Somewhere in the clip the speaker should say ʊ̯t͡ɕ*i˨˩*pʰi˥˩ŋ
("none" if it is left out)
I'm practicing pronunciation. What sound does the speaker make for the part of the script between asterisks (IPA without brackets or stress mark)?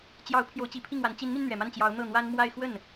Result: i˨˩